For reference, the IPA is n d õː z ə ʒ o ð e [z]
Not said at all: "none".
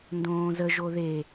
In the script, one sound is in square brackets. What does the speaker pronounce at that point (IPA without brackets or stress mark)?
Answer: none